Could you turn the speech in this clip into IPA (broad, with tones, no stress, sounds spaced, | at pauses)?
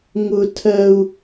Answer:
ŋ ʊ˥ tʰ ɜ˥ u̯